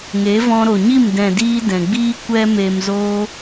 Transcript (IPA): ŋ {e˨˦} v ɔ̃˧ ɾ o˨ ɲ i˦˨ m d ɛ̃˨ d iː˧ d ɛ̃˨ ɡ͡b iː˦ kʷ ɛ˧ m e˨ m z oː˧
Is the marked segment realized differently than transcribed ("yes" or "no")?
no